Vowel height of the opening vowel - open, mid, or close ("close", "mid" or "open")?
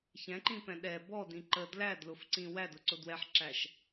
mid